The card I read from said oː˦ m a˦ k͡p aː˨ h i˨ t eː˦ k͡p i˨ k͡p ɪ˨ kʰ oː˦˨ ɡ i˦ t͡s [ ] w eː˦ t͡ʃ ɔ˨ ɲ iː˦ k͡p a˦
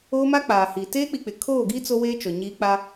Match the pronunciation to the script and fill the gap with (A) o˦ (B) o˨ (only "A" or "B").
A